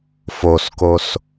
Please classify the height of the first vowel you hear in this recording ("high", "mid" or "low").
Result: mid